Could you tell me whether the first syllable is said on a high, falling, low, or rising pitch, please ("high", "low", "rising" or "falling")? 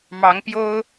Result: rising